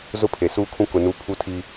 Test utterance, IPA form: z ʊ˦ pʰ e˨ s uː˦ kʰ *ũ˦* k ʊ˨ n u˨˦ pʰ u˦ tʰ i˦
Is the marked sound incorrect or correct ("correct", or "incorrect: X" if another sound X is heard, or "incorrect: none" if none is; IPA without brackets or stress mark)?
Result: correct